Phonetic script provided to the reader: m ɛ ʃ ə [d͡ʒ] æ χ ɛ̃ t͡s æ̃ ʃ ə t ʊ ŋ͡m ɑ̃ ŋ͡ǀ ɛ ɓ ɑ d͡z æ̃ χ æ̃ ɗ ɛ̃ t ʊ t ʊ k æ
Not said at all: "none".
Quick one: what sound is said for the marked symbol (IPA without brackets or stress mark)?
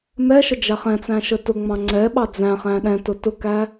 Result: d͡ʒ